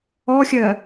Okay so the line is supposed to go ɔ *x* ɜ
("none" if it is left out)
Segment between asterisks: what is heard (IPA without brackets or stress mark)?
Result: xʲ